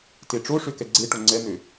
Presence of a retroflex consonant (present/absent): present